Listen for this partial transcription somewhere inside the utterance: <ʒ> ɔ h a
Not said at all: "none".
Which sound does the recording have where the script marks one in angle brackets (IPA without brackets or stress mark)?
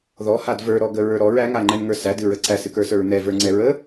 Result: ð